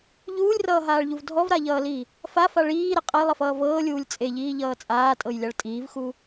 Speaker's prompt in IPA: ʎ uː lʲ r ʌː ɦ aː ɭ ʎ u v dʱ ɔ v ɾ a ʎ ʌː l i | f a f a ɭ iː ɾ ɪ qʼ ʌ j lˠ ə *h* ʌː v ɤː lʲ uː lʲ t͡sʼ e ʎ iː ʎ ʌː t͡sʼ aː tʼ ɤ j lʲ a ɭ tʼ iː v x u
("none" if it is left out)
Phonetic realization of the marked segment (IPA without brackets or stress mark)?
f